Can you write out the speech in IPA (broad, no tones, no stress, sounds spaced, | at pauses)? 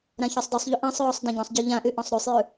ɾ ã ç ə˞ sˤ d ɯ sˤ ʎ o ʔ ã sˤ ɹ ɔ sˤ d ã ɟ ɔ̃ sˤ ɟ ə˞ ʎ ã ʔ y ʔ ɔ̃ sˤ ɾ ʉ sˤ j ʉ